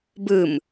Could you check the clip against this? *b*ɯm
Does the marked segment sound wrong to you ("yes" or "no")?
no